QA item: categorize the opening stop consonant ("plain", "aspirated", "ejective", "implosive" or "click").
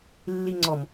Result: click